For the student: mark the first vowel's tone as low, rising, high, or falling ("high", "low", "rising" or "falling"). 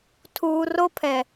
low